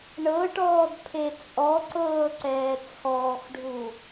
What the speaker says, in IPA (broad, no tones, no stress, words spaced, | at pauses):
ɳɤʈɔːd pʰet͡sʼɔǀɤː ǀɛːt͡sʰɔːxɖʱu